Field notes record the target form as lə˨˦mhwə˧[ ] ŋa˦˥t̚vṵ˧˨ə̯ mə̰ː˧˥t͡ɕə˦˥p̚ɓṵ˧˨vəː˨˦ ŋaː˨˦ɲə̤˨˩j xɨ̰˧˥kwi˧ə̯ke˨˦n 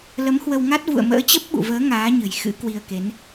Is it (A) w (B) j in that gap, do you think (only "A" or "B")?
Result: A